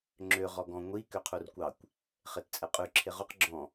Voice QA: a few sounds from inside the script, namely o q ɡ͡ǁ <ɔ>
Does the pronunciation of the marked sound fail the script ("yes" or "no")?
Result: yes